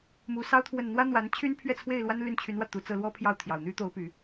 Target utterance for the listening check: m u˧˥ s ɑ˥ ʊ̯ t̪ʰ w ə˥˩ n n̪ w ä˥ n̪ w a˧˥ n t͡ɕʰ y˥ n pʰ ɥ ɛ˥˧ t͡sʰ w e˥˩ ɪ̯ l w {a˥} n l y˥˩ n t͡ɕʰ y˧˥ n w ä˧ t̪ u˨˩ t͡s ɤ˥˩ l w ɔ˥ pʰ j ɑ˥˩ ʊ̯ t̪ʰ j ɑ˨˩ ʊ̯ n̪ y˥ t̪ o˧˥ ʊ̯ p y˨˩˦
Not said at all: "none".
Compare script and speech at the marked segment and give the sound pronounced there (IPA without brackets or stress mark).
a˥